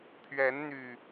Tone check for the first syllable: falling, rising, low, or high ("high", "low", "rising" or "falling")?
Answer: rising